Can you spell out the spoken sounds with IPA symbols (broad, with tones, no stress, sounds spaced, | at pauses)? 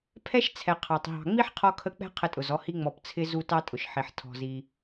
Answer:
pʰ ɛ˥ ʃ t͡sʰ ɛ˨ qʰ ɑ˩ tˤ ɦ ɑ̤˨ ŋ͡m i˥ ħ qʰ ɔ˥ kʰ ə˥ k͡p ɛ̤˥ qʰ ə˦ tʼ ʊ˩ z ɔ˦ h i˥ ŋ͡m ɔ˨ p t͡sʰ ɪ˥ z u˦ t ɑ˥ tʼ ʊ˩ ʃ ħ i˩ ħ tʰ ɔ̤˨ z i˨